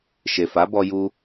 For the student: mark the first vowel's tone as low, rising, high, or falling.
low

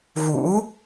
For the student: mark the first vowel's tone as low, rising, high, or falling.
rising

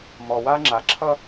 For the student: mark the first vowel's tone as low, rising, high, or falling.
low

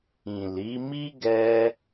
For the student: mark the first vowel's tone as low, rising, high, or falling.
low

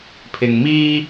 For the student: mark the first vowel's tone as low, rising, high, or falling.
low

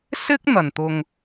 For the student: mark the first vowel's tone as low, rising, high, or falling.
high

